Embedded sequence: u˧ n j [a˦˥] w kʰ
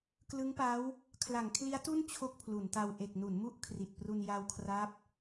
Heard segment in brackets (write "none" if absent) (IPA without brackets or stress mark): a˧